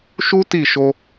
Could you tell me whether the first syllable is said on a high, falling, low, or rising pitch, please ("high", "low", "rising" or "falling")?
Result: high